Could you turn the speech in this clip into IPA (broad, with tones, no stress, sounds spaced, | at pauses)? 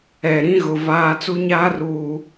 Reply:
ɛ˨ ɾ ĩ˦ ɣ ʊ˨ v aː˨ t͡s u˦ ɲ aː˦ r uː˨